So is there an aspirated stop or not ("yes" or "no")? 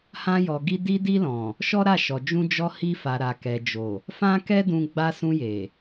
no